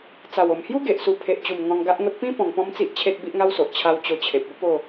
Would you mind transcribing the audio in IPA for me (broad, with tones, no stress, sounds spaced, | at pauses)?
t͡s a˨˩ w o˨˩ m h j u˦ ɡ e˨ ʔ s u˧ pʰ e˨ ʔ t͡ɕ u˨˩ m ŋ ɔ̃˧ ŋ ɡ a˦ ʔ ŋ o˦ t̚ p ĩ˦ p ɔ̃˧ ŋ p ɔ̃˦ m t͡s i˦ ʔ t͡ɕʰ e˦ t̚ b i˦ ʔ ŋ a˦ w s o˨ ʔ t͡ɕʰ a˧ w t͡ɕ o˧ t͡ɕʰ e˨ p̚ ə˦ p o˥˧